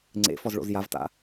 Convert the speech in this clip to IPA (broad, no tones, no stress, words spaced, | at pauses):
ŋ͡ǀḛfɔzɭo̰z javta̰